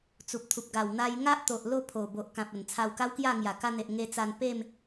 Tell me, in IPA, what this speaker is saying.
t͡s u˨ p̚ t̪ʰ u˨ p̚ ɡ a˨˩ w n̪ a˧ j ŋ a˦ ʔ t̪ o˨ ʔ l o˥˧ pʰ o˨˩ b o˨ ʔ k ã˨ p̚ ə˨˩ n t͡sʰ a˧ w k a˦ w k j a˥˧ ŋ j a˨˩ k a˧ n̪ e˨ ʔ ŋ e˧ t͡s a˧ n p e˥˧ m

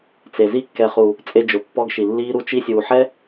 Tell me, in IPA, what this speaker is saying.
t͡s e˨ z i˧ kː ɛ˨ χ u˨ | t͡sʼ e˧ d͡ʒ ʊ˨ pː ɔ˧ ɡ ʃ i˨ lː iː˧ ɾ u˧ t͡ʃ i˧ sʲ uː˨ ħ ɛ˦

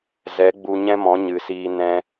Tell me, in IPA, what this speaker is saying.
z ɛ˨˦ ɡ͡b u˧ ɲ ɛ̃˦ m ɔ̃˨˦ ɲ ɨ˨ s iː˧ n ɛ̃˧

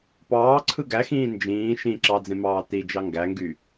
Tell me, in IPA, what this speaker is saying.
p ɑː ǀʰ ɯ ɡ æ x ĩː n d͡ʒ ĩː ʃ ĩ ǁ ɑ d͡z ẽ m ɑː t i d͡ʒ ɑ ŋ ɡ æ ŋ ɡ y

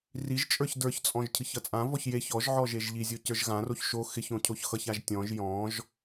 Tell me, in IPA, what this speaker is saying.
r i ʒ t͡ʃʼ ə˞ ç d ə˞ ç t͡sʼ ɔ̃ ʒ cʰ ɨ ç ʌ t͡sʼ ã v ɔ ç j e ç ɔ ʒ ʕ ɔ ʒ e ʒ ʎ i zʲ o c ə˞ ʒ ɣ ã r o ç ʃ o x ɪ ç õ cʰ o ç x ʌ ç a ʒ tʲ ɔ̃ ʒ j ɔ̃ ʒ

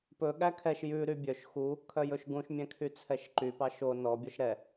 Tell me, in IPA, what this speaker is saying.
p ɵ ɠ æ kʰ ɛ ʃ j ʉ ɾ y bʲ œ ʃ x u | kʰ œ j ɵ ʃ ɡ ũ ʃ mʲ ɛ̃ kʰ y t͡sʰ ɛ ʃ ǃ y p ɑ ʃ o n ɔ bʲ ɔ ʃ ɾ ɛ

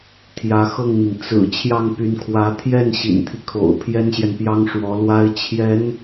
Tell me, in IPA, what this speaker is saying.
t̪ʰ j ä˧˥ x ɤ˥˩ ŋ n̪ i˩ ŋ t͡s ɹ̩˨˩ t͡ɕʰ j ɑ˥˩ ŋ p y˧˥ n kʰ w ä˧˥ t̪ʰ j ɛ˥˩ n ɕ ḭ˨˩ n t̪ʰ i˦ kʰ o̰˨˩ ʊ̯ pʰ j ɛ˥ n ɕ j ɛ˨ n p j ɑ˥ ŋ ʂ w ɔ˧˥ l w a˥ ɪ̯ t͡ɕʰ j ɛ˧˥ n

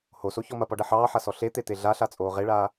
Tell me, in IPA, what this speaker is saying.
h o s o ç ɔ m ɐ p ɔ ɖ ɐ ħ ɑː ħ a s ɔ ɬ e t̪ e t̪ e ɮ a ɬ a t͡sʼ oː ʁ e ɭ aː

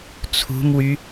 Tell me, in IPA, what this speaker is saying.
t͡sʰ ṳ m w y

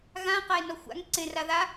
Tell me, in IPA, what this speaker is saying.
ɣ ã q a e̯ n ɔ xʷ a̰ ŋ ǀ ẽ r a ð a

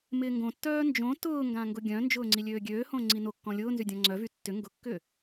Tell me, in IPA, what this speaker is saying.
m ɪː ŋ ɡ õ tː œː n d͡ʒ õ t ʊː ŋ ɡ ã ŋ ɡ ʊ ɡʲ œ̃ n d͡ʒ ʊː ŋ͡ǀ i lʲ øː ɡʲ øː h õ ŋ͡ǀ i n o kː ɔ̃ lʲ ʊː n z y dʲ ɔ̃ ŋ͡ǀ œ v y tː ʏ ŋ ɡ ʊ kː ʏ

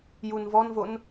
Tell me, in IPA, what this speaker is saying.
j u n v ɔ n v o n

